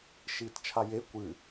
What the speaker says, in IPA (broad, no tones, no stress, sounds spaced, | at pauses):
ʃ iː t t͡ʃʰ a j e kʷ ɨ